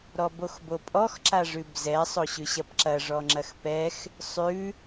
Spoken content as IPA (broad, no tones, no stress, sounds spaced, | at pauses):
ɾ ɔ b o x b o pʼ ɔ x ǁ a ʐ ʉ b z ɛ sˤ o ɕ ʉ ɕ ɐ p ǁ ɐ ʐ ɔ ŋ͡ǁ ɐ x p ɛ x | sˤ ʉ